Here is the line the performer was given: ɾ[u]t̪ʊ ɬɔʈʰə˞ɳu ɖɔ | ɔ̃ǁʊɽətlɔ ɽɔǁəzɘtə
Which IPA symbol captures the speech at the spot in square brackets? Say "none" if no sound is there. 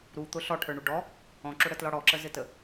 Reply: u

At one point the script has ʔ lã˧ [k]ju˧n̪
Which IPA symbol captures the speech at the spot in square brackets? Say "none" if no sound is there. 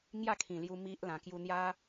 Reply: k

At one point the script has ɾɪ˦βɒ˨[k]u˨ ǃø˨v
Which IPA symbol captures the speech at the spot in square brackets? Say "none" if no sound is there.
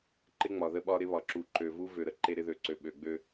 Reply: ǁ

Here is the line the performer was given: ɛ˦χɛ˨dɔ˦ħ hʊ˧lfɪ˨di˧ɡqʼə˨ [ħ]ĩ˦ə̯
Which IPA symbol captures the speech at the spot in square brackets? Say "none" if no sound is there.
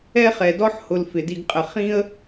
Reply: χ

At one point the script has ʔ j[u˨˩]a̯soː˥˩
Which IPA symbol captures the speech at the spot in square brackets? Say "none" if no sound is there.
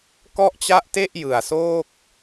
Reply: ɯ˨˩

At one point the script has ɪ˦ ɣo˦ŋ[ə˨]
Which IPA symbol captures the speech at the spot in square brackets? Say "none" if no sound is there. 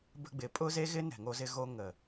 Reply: ə˨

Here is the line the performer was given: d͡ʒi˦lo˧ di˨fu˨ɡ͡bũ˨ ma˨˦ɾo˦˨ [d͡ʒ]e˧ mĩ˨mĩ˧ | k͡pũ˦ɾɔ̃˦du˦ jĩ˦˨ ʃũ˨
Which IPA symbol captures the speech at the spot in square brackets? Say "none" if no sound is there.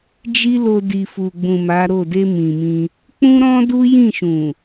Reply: d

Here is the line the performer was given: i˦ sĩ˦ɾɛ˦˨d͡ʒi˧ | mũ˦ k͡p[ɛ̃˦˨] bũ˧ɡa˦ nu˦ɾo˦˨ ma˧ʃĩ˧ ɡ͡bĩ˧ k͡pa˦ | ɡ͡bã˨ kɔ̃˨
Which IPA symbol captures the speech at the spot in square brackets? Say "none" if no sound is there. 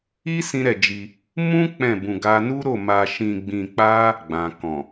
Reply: ɛ̃˦˨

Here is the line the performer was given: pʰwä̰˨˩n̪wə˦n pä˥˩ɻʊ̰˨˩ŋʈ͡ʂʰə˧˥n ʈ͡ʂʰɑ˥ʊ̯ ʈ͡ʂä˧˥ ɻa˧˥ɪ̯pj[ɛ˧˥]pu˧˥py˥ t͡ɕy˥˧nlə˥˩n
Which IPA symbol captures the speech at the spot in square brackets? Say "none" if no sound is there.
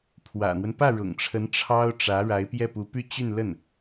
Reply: ɛ˥˩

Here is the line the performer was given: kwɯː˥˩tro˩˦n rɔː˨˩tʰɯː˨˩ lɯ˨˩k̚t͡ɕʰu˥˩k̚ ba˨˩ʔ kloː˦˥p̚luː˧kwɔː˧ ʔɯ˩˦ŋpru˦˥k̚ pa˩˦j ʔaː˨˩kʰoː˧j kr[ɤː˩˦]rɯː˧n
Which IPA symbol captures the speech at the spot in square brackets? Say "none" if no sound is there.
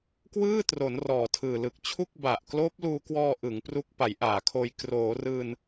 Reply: oː˩˦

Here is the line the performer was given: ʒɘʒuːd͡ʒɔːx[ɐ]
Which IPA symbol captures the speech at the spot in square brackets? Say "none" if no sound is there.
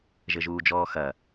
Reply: ɐ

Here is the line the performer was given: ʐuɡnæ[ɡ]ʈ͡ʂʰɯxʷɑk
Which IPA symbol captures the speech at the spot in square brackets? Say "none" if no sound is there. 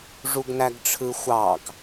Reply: ɡ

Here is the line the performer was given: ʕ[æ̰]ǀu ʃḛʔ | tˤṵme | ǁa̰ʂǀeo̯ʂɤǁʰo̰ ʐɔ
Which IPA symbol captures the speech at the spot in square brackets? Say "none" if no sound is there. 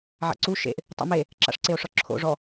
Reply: a̰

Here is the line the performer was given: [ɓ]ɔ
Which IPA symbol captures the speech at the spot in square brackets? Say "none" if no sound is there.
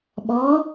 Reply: ɓ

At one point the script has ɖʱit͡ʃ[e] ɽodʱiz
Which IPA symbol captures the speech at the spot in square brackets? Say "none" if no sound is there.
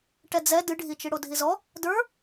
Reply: i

